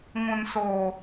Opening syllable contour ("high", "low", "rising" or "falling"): high